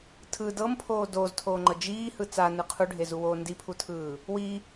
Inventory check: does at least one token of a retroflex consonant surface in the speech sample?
yes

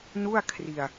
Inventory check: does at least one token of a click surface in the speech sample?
no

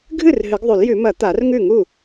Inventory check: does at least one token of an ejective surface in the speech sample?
no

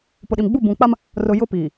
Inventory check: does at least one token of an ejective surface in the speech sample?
no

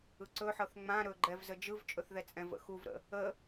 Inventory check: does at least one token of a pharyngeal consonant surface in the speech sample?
yes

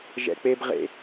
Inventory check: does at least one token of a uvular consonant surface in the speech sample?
yes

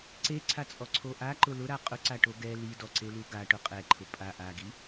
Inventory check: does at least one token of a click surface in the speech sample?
yes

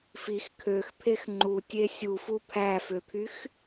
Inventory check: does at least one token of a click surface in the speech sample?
yes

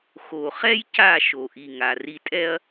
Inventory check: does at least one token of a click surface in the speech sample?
no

